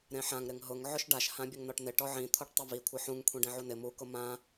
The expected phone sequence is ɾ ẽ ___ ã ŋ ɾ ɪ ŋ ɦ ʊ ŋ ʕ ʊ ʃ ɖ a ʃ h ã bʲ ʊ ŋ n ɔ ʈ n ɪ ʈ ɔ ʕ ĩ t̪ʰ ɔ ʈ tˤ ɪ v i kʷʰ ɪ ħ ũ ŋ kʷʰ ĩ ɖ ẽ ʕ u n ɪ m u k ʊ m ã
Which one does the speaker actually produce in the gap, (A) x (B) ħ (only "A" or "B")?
B